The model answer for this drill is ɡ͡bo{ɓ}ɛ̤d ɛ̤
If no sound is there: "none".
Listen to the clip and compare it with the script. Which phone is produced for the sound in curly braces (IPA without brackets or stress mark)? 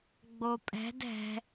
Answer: pʼ